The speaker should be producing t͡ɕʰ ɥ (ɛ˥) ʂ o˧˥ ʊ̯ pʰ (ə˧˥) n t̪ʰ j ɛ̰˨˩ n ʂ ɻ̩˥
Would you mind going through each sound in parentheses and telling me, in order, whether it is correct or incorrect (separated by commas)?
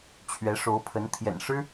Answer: incorrect, correct